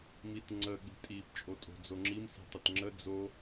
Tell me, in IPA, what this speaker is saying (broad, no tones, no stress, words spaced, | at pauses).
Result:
mitŋ͡ǀə ɠi̤tʼip t͡ʃʼotʼo̤d͡zoŋ͡ǁim si̤tˤətŋ͡ǁə d͡zo